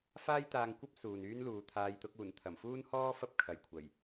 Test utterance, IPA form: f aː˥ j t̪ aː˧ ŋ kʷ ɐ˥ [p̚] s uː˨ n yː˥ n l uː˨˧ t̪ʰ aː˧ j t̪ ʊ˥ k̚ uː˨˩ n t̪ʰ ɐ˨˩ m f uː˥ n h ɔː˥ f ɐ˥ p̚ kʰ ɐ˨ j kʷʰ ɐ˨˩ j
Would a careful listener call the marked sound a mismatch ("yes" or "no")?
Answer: no